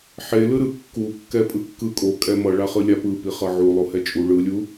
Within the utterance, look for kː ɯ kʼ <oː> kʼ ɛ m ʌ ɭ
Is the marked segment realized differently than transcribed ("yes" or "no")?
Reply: yes